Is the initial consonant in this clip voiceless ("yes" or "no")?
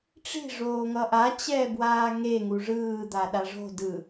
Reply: yes